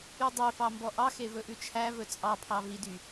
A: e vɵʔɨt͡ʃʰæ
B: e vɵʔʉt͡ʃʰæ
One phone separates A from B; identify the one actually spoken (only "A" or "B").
B